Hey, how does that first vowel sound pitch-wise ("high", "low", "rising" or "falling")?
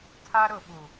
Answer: high